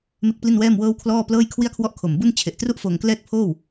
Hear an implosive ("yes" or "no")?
no